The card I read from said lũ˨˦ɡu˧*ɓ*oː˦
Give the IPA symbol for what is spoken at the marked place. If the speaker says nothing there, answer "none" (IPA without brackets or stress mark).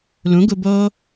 b